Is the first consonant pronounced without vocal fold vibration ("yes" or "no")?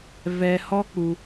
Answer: no